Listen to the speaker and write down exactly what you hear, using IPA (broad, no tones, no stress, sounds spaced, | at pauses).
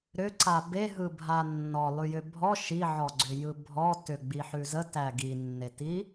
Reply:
ɾ ʏ ǀ a b e ɦ ɯ bʱ a nː ɔ lˠ ʉ j ʏ bʱ ɔ ʃ i ʕ ɔ ɡ͡ǀ ʏ j ɯ bʱ ɔ t ʏ ɡ͡b i ħ ʉ z ə t æ ɡ i nː e t i